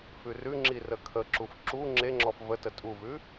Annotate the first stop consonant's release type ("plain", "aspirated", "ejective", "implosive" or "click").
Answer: click